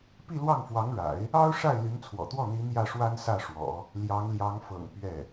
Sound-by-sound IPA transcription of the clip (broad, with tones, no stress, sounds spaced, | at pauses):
p i˥˧ l w ɑ˥˩ ŋ f w ɑ˧˥ ŋ ɻ a̰˨˩˦ ɪ̯ | ɑ˥ ʊ̯ ʂ a˥˩ ɪ̯ l y˧˥ n t͡sʰ w ɔ̰˨˩ t̪ w ɔ˥˩ n̪ i˧˥ n̪ j ä˥˩ ʂ w a˥ n s ä˥˩ ʂ w ɔ̰˨˩˦ | l j ɑ˧˥ ŋ l j ɑ˧˥ ŋ f ɤ̰˨˩ ŋ p ɥ ɛ˥˩